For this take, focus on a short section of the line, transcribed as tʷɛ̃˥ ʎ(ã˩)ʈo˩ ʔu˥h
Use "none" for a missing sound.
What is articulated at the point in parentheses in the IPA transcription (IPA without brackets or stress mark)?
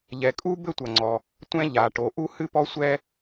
a˩